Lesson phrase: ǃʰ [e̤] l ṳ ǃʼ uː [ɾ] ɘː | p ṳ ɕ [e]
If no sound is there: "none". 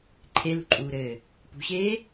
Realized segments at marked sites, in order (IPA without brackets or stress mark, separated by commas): e, ɾ, eː